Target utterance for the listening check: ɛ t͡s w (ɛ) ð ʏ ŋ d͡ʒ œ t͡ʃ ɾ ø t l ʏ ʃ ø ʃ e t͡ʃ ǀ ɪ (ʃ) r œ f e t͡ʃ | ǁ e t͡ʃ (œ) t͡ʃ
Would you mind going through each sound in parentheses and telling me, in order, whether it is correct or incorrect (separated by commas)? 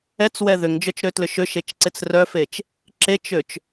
correct, incorrect, incorrect